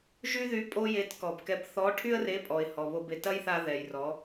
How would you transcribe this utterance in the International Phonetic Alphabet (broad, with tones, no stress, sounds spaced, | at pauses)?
ʒ y˥ ð y˧˥ pʼ o˥ j e˧˥ t k ɔ˩ b k ɛ˧˥ b θ ɔ˧˥ ʈʰ y˥ ə̯ r e˧˥ pʼ ɔ˩ ɪ̯ h ɔ˩ β o˧ b e˩ t ɐ˥ j θ a˧ ð ɛ˩ j r ɔ˩˧